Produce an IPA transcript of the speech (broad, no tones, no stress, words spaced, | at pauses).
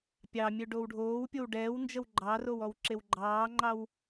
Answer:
pʲɑmʲøɖow ɖʱoːwpʲow ɖɛːwnd͡ʒəw ɡ͡ǃɑrowɔwǁew ɡ͡ǃɑːŋ͡ǃɑw